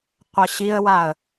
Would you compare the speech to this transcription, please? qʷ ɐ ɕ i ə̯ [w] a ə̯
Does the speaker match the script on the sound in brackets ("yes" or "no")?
yes